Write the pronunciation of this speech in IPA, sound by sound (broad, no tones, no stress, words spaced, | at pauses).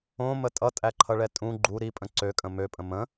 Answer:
õmə tʼʌtʼæǃʰʌɭɛ tʼũ ɡ͡ǃu ɾipʼə̃ ǀøkʼə̃ møpʼə̃ mə̃